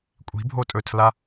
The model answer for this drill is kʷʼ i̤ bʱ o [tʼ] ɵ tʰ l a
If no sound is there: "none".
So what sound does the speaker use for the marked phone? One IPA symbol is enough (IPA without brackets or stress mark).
tʼ